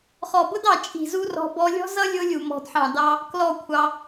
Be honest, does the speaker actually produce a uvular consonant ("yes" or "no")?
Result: yes